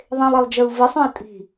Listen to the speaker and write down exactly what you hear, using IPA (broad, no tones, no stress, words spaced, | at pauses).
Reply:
ðˤẽlˠelˠd͡ʒə˞u̯ vəsˤœ̃i̯ tʼi̤